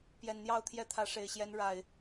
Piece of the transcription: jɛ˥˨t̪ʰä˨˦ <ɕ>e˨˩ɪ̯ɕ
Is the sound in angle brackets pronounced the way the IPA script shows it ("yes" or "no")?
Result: no